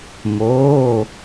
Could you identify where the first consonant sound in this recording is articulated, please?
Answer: labial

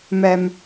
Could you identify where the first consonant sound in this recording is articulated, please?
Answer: labial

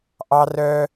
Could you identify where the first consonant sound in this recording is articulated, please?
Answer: glottal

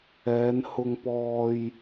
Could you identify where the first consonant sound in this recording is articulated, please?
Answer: alveolar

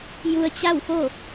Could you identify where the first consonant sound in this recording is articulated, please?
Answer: palatal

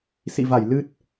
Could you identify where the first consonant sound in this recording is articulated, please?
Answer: alveolar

